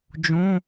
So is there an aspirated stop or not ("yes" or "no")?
no